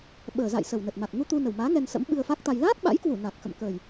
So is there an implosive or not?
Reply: yes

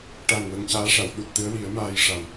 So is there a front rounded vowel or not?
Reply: no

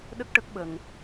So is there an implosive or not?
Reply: yes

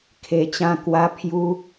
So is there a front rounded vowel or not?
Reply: no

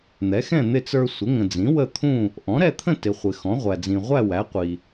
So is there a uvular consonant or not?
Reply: yes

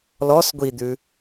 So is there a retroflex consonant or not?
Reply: no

